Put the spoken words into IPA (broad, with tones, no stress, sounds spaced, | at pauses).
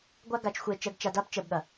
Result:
ɡʷ a˦ ɡ a˧ t͡ʃ xʷ e˧ t͡ʃ ɜ˧ ɡ t͡ʃ a˧ d a˦ b t͡ʃ ɜ˧ b ɠ ɐ˨